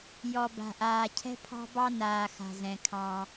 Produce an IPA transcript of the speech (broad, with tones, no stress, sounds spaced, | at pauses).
j ɔ˨ b a̤˨ ʔ aː˨ cʰ ɛ̤˦ pʰ ɑ̤˦ b ɑ˦ n aː˨ x a̤˨ z ɛ̃˨ kʰ ɑ̃˦